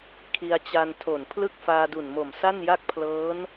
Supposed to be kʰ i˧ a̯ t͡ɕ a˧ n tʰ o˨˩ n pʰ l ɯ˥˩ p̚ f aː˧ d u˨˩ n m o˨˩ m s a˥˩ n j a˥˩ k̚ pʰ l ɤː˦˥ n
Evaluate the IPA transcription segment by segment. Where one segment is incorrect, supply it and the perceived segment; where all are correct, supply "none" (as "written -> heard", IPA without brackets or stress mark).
p̚ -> k̚